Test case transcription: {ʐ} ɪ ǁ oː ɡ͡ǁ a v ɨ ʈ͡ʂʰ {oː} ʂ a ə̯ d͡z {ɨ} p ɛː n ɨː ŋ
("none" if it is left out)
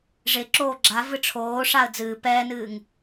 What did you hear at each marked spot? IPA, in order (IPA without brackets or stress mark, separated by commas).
ʐ, oː, ɨː